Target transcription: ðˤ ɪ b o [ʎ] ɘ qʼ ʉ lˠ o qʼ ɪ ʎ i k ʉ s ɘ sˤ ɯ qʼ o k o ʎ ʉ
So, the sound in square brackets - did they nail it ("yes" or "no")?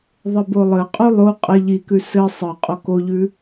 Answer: no